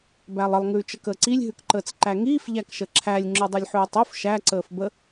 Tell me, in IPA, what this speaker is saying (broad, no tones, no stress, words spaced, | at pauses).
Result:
bælˠəlˠ ŋʉːt͡ʃəkəːǀilʲ ɦʉkǃəːt͡sǃæŋiːf ʎækʃəǁʰælʲ ŋ͡ǁʉdˤəlʲħʉːtˤuf ʃæ ǀəːfbə